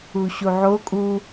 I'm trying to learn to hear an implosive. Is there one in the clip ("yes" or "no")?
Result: no